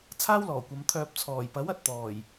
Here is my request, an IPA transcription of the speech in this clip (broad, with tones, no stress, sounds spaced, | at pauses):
t͡sʰ aː˥ w l ɔː˨˩ kʷ ɐ˨˧ m t̪ʰ œː˧ p̚ t͡sʰ ɔː˨˩ j p ɐ˨˥ w ɐ˨ t̚ t̪ ɔː˨˩ j